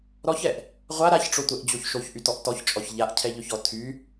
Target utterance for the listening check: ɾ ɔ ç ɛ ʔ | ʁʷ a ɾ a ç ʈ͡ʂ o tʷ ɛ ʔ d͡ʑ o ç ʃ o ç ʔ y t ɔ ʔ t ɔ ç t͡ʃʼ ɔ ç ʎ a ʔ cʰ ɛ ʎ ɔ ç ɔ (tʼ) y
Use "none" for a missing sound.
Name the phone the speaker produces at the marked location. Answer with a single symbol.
tʰ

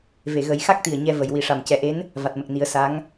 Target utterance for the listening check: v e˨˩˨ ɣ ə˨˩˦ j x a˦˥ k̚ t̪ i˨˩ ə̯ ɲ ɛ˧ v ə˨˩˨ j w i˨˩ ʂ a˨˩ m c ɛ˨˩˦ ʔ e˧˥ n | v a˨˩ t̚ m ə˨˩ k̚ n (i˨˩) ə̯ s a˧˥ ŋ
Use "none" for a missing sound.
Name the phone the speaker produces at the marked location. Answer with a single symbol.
i˨˩˦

